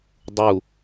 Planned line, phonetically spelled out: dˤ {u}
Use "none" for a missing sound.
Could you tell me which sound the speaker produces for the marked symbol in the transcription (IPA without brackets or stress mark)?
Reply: u